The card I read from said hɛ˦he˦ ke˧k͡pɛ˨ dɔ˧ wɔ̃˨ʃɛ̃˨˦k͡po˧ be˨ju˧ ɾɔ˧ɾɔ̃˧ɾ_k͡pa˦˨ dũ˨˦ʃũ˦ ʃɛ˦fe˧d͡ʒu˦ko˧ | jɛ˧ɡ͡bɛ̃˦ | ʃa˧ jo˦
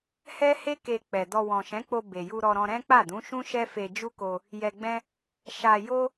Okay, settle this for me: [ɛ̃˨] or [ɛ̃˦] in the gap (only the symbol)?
ɛ̃˦